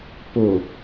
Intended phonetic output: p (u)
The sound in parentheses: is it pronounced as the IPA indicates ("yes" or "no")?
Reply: no